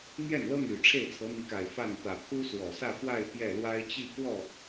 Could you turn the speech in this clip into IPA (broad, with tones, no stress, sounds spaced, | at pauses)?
n̪ j ɛ˥˩ n l ɤ˥ n̪ y˨˩ ʈ͡ʂʰ e˥˩ ɪ̯ t͡sʰ ɤ˧˥ n̪ i˧˥ k a˨˩ ɪ̯ f a˥˩ n t̪ ä˨˩ pʰ u˥ s w ɔ˨˩ s ä˥˧ f w a˥˧ ɪ̯ p j ɛ˥˩ l w a˥ ɪ̯ t͡ɕ i˥˧ k w ɔ˥˩